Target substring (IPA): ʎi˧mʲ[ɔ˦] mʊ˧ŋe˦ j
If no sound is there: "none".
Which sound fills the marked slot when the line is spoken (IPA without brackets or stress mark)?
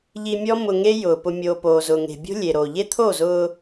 ɔ˦